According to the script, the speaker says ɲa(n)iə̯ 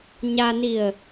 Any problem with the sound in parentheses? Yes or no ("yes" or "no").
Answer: no